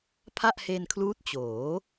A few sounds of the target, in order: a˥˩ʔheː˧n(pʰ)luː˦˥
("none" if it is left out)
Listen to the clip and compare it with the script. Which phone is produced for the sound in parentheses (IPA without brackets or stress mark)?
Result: kʰ